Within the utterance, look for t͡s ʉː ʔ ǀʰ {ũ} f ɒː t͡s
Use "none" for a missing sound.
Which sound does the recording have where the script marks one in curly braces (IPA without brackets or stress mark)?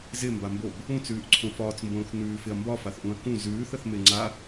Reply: õ